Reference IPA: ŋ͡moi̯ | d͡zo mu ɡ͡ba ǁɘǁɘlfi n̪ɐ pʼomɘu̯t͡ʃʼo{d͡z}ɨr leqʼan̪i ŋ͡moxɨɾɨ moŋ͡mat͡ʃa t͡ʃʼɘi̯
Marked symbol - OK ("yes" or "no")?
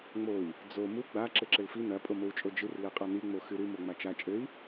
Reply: no